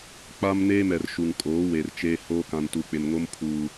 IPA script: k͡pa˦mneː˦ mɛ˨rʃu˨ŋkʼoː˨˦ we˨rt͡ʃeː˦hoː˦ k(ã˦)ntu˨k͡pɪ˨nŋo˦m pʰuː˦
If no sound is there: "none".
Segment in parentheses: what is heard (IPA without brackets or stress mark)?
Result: ã˨